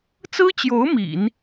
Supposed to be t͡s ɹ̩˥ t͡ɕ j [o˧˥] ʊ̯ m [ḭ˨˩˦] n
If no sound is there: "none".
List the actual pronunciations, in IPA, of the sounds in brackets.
o˧˥, ḭ˨˩˦

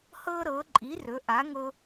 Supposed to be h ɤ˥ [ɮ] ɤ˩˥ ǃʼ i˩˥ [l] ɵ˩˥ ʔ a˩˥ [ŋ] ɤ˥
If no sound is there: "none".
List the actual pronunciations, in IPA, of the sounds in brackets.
ɾ, r, ŋ

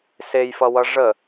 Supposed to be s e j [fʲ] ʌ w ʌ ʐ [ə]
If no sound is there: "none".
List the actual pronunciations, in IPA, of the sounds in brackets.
f, ə

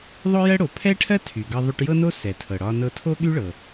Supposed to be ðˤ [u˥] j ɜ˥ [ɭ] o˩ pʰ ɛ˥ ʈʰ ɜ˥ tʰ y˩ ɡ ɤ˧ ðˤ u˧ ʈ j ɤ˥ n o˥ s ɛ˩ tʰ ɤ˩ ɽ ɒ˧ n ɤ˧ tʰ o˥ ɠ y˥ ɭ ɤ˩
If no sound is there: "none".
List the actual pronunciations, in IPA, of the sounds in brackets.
o˥, ɽ

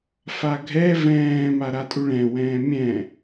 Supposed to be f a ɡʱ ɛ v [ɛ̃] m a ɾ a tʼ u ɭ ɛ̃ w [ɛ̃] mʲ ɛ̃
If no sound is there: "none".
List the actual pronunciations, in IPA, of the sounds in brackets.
ɛ̃ː, ɛ̃ː

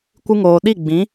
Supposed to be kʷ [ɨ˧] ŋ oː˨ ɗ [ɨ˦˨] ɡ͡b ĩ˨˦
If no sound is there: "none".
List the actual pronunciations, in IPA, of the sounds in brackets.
ɨ˧, i˦˨

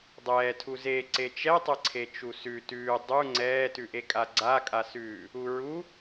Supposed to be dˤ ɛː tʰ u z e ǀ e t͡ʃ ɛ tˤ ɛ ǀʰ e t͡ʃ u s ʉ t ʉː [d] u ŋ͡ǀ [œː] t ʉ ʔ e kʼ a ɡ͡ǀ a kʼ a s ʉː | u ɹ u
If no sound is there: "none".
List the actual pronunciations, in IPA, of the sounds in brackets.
dˤ, ɛː

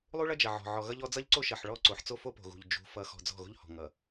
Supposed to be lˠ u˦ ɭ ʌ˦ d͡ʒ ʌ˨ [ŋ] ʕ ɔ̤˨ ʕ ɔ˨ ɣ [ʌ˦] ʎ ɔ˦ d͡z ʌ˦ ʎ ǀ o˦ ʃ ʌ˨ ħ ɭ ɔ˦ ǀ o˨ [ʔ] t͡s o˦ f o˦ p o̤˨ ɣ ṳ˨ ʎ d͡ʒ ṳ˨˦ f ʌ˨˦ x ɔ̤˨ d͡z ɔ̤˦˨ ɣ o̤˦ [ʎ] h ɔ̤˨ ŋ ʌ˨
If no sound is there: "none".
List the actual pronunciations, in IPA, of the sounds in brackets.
none, ʌ˦, ħ, ʎ

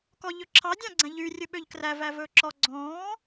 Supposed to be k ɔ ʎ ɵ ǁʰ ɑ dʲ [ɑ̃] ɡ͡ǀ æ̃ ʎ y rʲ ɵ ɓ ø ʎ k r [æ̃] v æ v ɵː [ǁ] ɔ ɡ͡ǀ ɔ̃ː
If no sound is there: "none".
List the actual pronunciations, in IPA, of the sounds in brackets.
ɑ̃, æ, ǁ

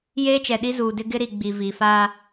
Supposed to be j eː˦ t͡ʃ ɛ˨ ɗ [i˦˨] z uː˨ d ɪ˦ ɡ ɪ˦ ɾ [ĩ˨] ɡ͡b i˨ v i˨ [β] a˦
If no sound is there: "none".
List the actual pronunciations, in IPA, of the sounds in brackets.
i˦, i˨, f

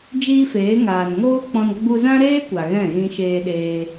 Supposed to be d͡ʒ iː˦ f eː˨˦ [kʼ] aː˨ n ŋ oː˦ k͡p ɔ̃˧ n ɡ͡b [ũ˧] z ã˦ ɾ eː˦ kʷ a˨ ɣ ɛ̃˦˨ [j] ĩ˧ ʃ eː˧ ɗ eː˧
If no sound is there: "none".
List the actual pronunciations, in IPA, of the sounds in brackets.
ŋ, u˧, ɣ

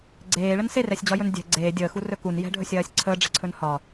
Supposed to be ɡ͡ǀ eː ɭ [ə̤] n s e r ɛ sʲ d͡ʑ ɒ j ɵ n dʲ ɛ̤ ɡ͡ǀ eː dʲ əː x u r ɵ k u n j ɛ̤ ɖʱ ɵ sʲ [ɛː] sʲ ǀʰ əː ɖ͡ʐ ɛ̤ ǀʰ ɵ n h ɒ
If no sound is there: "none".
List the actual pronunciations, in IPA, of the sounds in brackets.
ə, ɜː

